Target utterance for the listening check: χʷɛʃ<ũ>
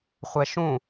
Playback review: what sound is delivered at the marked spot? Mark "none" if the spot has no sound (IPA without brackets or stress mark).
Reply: ũ